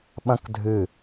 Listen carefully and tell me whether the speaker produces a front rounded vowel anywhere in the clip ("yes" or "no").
no